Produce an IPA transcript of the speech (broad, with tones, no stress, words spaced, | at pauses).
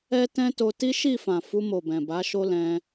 ɛ˦tɛ̃˦to˧ ti˦ʃi˦˨fã˨ fu˧mo˨bɛ̃˨ba˨˦ ʃo˦lɛ̃˧